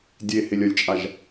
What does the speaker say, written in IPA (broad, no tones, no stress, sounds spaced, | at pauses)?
dʲ e h e lʲ ɐ lʲ t͡ʃʼ a ʒ